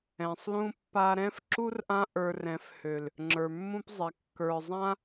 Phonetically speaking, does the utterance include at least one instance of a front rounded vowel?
yes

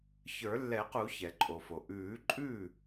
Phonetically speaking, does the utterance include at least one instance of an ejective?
yes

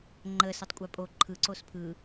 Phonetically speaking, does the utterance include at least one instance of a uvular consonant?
no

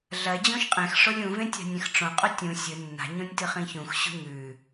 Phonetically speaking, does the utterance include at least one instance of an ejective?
yes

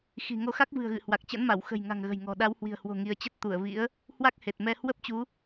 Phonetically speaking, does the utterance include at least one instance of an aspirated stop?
no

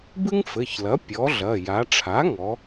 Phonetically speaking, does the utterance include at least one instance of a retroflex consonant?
yes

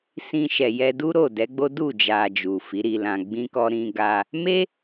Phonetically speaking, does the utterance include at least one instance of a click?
no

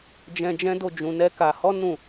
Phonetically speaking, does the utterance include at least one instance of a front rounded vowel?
no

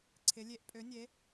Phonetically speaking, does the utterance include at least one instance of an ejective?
yes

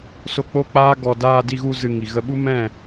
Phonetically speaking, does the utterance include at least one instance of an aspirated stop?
no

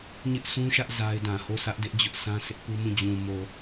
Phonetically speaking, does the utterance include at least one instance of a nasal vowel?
yes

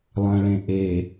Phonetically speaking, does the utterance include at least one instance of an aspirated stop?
no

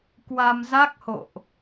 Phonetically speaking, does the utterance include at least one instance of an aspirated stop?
no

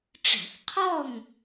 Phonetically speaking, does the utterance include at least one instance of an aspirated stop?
yes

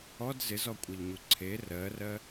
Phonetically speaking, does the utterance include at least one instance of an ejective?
yes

